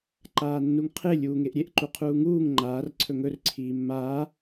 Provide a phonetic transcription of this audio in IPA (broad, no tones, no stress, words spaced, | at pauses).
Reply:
ǃaːnːuŋqʰe lʲuːŋeʔɾʲeʔ ǃuqʰuːŋuːŋ ŋ͡ǃaːr ǀʰɵŋɵr ǀʰiːmːaː